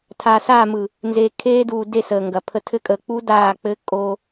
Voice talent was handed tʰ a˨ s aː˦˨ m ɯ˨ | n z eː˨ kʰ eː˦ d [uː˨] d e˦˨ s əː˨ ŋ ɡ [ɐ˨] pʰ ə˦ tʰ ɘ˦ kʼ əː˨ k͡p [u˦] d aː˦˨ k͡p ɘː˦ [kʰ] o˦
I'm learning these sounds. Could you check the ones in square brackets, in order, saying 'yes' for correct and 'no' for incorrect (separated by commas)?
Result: yes, yes, yes, no